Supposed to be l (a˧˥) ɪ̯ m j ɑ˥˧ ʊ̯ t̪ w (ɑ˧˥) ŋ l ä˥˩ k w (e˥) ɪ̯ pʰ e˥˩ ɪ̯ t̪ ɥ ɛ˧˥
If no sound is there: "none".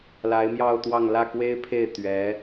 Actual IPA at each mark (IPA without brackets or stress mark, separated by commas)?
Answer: a˧˥, ɑ˥˧, e˥